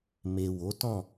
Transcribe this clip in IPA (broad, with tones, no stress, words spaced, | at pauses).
me˨ wo˨˦tɔ̃˦˨